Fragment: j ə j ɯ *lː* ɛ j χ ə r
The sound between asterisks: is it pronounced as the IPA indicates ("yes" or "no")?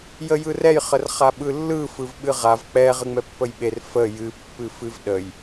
no